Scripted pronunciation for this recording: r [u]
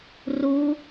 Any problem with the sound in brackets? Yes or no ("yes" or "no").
no